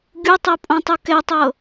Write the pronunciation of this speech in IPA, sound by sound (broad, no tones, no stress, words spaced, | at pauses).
ɡʲutˤopʼõtˤu kɛtˤɤ